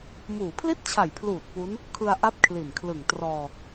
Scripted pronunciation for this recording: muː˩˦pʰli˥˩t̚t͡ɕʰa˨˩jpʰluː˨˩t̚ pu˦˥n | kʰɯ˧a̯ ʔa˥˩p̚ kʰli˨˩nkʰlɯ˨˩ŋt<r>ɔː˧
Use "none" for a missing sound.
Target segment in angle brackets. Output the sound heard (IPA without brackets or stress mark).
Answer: r